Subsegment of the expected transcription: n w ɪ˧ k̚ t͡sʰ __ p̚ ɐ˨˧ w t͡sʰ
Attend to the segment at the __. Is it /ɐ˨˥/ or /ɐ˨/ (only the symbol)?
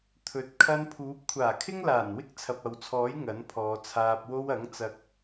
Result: ɐ˨